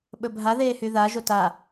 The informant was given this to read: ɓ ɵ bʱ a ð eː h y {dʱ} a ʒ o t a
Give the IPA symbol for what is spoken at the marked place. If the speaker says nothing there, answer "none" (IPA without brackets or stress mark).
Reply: ð